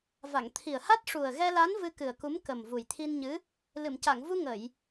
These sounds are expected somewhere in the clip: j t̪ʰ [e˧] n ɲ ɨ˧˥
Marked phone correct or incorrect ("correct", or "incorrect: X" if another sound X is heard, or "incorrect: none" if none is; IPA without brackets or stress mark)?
incorrect: i˧